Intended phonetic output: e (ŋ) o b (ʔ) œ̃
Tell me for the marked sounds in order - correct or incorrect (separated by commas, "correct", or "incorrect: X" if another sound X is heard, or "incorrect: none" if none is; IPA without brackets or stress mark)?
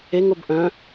correct, correct